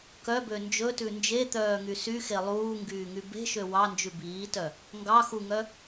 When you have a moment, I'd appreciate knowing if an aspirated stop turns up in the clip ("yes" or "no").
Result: no